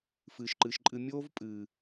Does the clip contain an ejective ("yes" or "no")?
yes